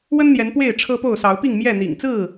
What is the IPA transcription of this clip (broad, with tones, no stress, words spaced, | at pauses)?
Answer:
wə˦nn̪jɛ˨˦n pwe˥˨ɪ̯ʈ͡ʂʰɤ˦po˥˨ʊ̯ sɑ˨˦ʊ̯pi˥˨ŋmjɛ˥˨ n̪ḭ˨˩ŋt͡sɹ̩˥˨